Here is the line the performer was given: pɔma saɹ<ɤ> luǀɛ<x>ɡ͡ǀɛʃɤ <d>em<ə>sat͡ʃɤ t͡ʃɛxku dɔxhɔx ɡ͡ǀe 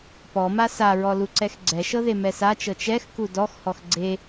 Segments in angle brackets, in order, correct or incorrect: incorrect, correct, incorrect, incorrect

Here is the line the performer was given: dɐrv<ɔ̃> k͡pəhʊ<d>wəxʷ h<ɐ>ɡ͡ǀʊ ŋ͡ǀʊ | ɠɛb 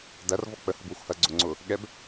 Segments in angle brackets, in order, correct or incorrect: incorrect, incorrect, correct

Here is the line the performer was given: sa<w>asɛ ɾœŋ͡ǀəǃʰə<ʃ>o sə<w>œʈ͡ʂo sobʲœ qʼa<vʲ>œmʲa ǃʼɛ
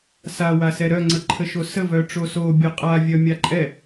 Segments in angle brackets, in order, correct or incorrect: correct, correct, incorrect, correct

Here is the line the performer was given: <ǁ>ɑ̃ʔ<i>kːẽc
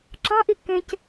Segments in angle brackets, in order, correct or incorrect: correct, correct

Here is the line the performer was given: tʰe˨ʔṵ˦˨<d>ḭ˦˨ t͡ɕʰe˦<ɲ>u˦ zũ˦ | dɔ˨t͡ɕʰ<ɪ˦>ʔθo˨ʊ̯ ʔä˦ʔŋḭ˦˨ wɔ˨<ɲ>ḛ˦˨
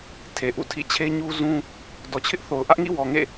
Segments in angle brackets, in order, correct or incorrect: incorrect, correct, correct, incorrect

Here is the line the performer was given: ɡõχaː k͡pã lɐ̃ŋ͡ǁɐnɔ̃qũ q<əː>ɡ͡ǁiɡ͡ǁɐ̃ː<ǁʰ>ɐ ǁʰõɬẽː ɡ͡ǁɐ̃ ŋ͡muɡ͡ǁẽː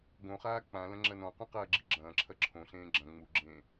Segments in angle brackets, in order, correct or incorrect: incorrect, correct

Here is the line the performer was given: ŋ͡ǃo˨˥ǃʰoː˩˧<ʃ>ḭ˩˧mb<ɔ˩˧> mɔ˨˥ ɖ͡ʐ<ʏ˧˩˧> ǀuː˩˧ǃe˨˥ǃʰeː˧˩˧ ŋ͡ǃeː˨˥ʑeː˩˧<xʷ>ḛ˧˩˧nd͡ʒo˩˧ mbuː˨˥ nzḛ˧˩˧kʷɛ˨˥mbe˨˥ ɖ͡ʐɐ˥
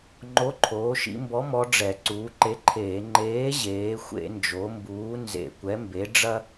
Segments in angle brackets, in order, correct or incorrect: correct, incorrect, incorrect, correct

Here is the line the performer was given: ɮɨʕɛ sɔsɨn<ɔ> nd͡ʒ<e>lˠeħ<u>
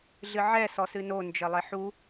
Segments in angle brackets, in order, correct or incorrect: incorrect, incorrect, correct

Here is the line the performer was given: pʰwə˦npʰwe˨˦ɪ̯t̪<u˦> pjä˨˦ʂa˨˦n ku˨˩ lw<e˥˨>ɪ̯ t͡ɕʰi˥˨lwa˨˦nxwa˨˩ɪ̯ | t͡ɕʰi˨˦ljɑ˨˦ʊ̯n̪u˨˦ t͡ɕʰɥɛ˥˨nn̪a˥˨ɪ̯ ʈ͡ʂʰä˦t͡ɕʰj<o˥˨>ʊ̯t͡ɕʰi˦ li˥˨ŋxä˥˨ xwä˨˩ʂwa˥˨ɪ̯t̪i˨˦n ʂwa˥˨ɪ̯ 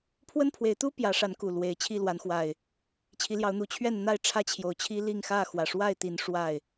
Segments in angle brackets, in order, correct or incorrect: correct, incorrect, incorrect

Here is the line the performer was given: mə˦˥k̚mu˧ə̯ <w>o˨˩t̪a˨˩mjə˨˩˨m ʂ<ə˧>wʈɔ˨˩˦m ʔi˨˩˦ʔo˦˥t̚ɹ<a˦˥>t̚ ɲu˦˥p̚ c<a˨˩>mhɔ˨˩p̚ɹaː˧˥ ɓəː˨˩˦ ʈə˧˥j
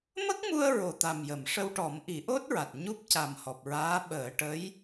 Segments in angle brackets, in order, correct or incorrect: incorrect, correct, incorrect, correct

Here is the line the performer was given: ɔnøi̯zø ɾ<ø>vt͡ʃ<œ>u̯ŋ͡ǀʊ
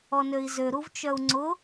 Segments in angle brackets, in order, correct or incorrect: incorrect, correct

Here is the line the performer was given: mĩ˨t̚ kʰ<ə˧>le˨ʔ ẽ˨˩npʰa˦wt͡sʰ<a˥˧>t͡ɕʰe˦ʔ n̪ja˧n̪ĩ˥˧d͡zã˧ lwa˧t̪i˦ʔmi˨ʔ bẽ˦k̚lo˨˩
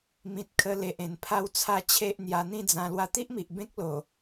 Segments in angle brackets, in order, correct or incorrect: correct, correct

